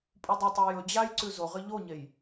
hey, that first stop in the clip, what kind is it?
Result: ejective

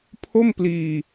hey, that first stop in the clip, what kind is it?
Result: aspirated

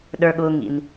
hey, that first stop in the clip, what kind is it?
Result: implosive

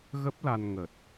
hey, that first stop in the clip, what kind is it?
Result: plain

